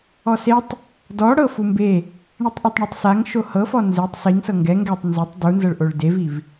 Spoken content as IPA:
ɔ s e tˤ | d ɔ ɽ ɤ f u m b e | ɳ i tˤ ʔ e tˤ ɳ u tˤ s a ŋ ʃ o h ɤ f ɔ n z e tˤ s i ŋ s ɤ ŋ ɡ ɛ ŋ ɡ ɛ tˤ n z o tˤ d u n z ɤ ɭ ʔ o ɭ d e v i v

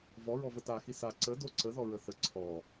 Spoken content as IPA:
v ɔ ɹ ɔ v ə t a x i s a ǀ ə d o ǀ ə ð ɔ ɹ ə θ ə ǀʰ ɔ

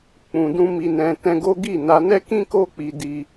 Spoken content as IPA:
k͡p ũ˨ d ũ˧ m i˨ n ɛ̃˨ t ɛ̃˧ ɡ o˦ ɡ i˦˨ n a˧ n ɛ˦ k ĩ˦ k o˦ k͡p i˧ d i˧

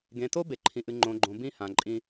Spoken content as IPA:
ɡ ẽ˨ t o˦ b e˨ ǃʰ ĩ˨ ʔ ɨ˨ ŋ͡ǃ õ˨ ɡ͡ǃ õ˨ b ĩ˦ h ã˨ ǃʼ ĩ˦

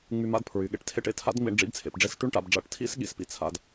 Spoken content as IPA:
ŋ͡m y˧ m a̰˧˥˧ d pʰ ɹ y˩˧ ɠ ḛ˩˥ ʈ tʰ ḛ˥˧ ʈ ḛ˩˧ tʰ a̰˦˥ d ŋ͡m ḭ˧ ɳ ɖ͡ʐ ḭ˦˥ b t͡sʰ ḛ˩˧ p ɖ͡ʐ e˦˥ s ʈ y˦˥ ɳ ʈ a̰˩˧ b ɖ͡ʐ a̰˥˧ ʈ tʰ ḭ˦˥ s ɠ ḭ˩˥ s p ḭ˧ t͡sʰ a̰˧ d

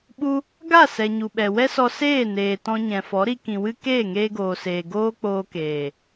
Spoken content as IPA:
ɓ u˦ | ɡ a˦˨ s ɛ˨ ɲ u˨ ɓ ɛ˨ w ɛ˦ s ɔ˧ s eː˦˨ n eː˨ t ɔ̃˧ ɲ ɛ̃˨ f ɔ˨˦ ɾ i˧ k ĩ˨ w ɨ˦ k eː˦˨ ŋ eː˧ ɡ oː˨ s eː˨ ɡ oː˦ k͡p oː˧ k eː˨

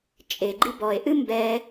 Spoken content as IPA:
t͡ʃʼ e ɡ͡ǃ i b ɔ e̯ ʔ ɨ m b ɛ

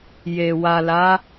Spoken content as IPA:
j e˨ w a˨ l a˨˦

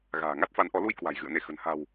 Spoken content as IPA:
ɣ a̤ː˨˩ ŋ a˦˥ t̚ f a˨˦ n ʔ ɔ˨˦ l u˧ j k w a̤˨˩ j ɣ ɨ̰˧˨ ə̯ n e˧˩ x ə̤˨˩ n h a̤˨˩ w

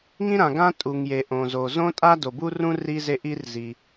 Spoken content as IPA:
ŋ ĩ˥ ɾ ã˩ ɡ ã˥ tʼ u˩ ŋ j e˩ ʔ õ˩ z o˩ z õ˥ tʼ a˥ d o˩ b u˥ r ũ˥ r i˥ z e˥ ʔ i˥ r z i˩

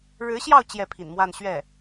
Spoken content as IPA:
ɻ ɻ̩˧˥ ɕ j ɑ˥˧ ʊ̯ t͡ɕ j ɛ˥˩ pʰ ḭ˨˩ n m w a˥˧ n ɕ ɥ ɛ˥˩

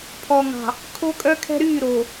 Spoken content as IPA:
pʰ ɔ˨ ŋ ɑ̤˨ | kʰ o˦ kʼ œ˦ kʰ ɛ̤˦ ɾ yː˦˨ ɾ o˨

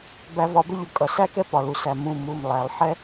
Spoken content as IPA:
b æ˨˩˦ v ɒ˩˧˩ b ə˥ ʎ ʊ˩˧˩ kʼ ʌ˩ s æ˥ k ɛ˥ p ɒ˩ l u˩ s æ˩ m ũ˩˧˩ m u˩˧˩ m lˠ æ˩ lˠ ħ ɛ˥

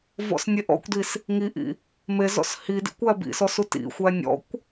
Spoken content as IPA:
v ɔ̰ s nʲ e ʔ ɔ̰ kʷ d i s | ŋ i ʔ ḭ | m e z ɔ̰ s h i d ḭ kʷ æ b ḭ s ɔ s u t ḭ xʷ æ nʲ ɔ̰ kʷ

